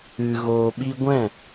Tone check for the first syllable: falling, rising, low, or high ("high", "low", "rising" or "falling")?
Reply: low